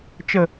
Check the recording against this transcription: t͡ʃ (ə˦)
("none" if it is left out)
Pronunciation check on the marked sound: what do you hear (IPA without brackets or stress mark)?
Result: ə˨